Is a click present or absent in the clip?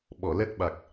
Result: absent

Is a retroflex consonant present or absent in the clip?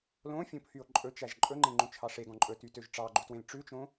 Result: present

